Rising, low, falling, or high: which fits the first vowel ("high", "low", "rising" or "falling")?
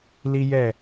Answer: high